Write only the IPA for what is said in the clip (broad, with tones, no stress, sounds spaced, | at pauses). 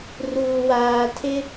r uː˨ w aː˨ tʰ ɪ˦